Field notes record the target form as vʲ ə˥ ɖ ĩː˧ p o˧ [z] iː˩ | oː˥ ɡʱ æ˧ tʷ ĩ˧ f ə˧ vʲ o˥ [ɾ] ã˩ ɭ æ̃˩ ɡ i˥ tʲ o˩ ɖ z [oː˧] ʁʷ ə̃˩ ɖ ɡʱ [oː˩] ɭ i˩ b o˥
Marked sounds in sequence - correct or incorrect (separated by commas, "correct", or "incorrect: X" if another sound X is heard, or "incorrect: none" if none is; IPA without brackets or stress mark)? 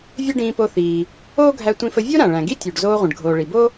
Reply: incorrect: θ, correct, correct, correct